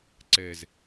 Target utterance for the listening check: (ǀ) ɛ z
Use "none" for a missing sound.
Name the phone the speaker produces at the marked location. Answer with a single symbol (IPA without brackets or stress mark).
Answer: ǀ